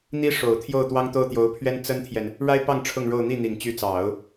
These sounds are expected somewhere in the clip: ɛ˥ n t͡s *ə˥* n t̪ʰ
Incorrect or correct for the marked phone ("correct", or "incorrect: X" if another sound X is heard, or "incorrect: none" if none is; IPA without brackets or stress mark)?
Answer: correct